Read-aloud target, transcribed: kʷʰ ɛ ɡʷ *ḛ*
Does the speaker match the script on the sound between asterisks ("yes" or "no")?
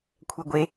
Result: no